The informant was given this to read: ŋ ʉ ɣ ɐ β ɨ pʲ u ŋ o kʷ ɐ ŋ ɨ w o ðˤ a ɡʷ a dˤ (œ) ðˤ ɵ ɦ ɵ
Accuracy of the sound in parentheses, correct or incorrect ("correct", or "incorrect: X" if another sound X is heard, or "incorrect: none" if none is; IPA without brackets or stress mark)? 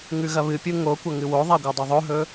incorrect: ɵ